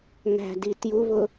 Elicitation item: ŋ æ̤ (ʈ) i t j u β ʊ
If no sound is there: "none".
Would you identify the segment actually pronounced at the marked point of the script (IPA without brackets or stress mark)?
d